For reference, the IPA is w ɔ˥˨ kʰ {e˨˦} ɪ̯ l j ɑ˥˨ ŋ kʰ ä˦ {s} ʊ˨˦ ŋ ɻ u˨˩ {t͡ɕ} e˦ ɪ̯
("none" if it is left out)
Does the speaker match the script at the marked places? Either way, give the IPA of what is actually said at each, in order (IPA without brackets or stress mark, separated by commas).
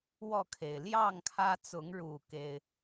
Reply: e˩, t͡s, k